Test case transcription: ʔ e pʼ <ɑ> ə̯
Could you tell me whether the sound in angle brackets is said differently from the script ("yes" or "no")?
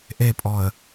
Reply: yes